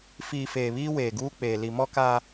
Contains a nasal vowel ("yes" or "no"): no